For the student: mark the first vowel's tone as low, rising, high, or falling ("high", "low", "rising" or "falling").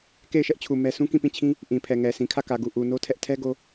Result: falling